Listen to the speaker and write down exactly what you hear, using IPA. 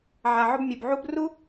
ʕ a˧ ʕ ʊ˥ b mʲ o˧ b ʕ u˥ b r u˥

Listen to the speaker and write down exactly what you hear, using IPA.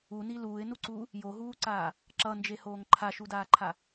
u n i l uː ɪ̯ n u ǀ uː | j o ɦ uː ǀ aː | ǁ ʌ n d͡ʒ e h oː ŋ ǃʰ a ʃ u d aː ǃʰ a

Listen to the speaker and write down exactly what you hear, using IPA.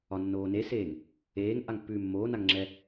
ɒ nː oː n e s eː ŋ | eː ŋ ʔ a ŋ pː ʉː mː oː n a ŋ ŋ͡ǁ ɛ

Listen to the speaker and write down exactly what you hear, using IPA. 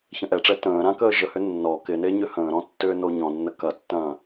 ç ɐ̃ ʔ ɛ ʈ͡ʂ ɛ t ə̃ː ɾ ã k əː ʒ ə h ʏ nː ɔ k ɪ n e ɲ ʏ h ə̃ː ɾ ɔ̃ tː ʏː n o ɲ ɔ̃ nː ə k ɐ tː ɐ̃ː

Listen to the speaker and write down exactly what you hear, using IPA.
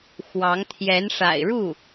x w ɑ˧˥ ŋ t̪ʰ j ɛ˧˥ n ʂ a̰˨˩ ɪ̯ ɻ u˥˩

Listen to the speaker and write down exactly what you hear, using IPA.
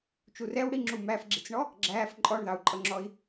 t͡ʃ u r ɛ w ɽ i ŋ͡ǁ u m æ f ɡ͡ǁ i t͡s ɳ ɔ | ɡ͡ǁ æː f ǃʼ ɔ ɳ ð ɑ u̯ ǃʼ ʌ ŋ͡ǁ ɔ i̯

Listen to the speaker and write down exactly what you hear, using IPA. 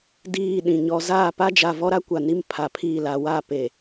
d iː˦˨ ɗ ĩ˨ ɲ ɔ˦ z aː˦˨ p a˦ d͡ʒ a˨ v ɔ˦ ɾ a˦ kʷ a˨ n i˦ m pʰ a˨ pʰ i˦˨ l a˨˦ w a˦˨ p e˨

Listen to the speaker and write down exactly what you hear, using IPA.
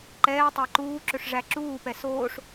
ǃ ɛː tˤ æ ǃ uː ǁ ɵ ʂ ʐ æ ǁ uː p ɛ s oː ʂ

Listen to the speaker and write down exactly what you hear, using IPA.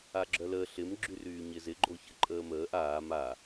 a ɡ͡ǁ œ l əː ɬ ɪ m ɡ͡ǁ y r yː ɲ ɪ z ɪ ɡ͡ǃ o ç ə ǃʼ əː m əː ʔ aː m a

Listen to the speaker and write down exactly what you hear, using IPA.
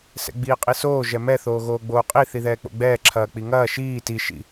s ɛ̰ ɡ͡b iː qʼ i s oː ʒ ɛ m ɛ θ oː ɣ oː ɡ͡b oː qʼ i θ i ð ɛː k͡p o̰ ɡ͡b ɛː ǁʰ ɐː k͡p i ŋ ɐː ʃ iː t i ʃ ḭ

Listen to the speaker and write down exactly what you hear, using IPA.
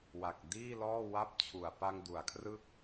w a˨˩ k̚ d iː˥˩ l ɔː˥˩ w a˥˩ p̚ t͡ɕʰ u˨˩ a̯ p a˧ ŋ d u˩˦ a̯ kʰ r ɯ˦˥ k̚

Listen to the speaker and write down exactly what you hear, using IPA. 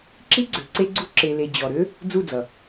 ǁ i˦ ɡ͡ǀ ø˨ ǀ e˧ ɡ͡ǀ u˧ ǁ e˨ l e˨ d͡ʑ ɔ˨ ɾ ø˦ | d͡z u˦˨ d͡z ʌ˨

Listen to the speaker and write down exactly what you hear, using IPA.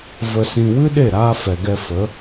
v ə˧ s ĩ˧ w ɨ˦ ɗ e˦˨ ɾ aː˧ f ɛ˨ ɡ ɛ˧ f ə˨˦

